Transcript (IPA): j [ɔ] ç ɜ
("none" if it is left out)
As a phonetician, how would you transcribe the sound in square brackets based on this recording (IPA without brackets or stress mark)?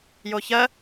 o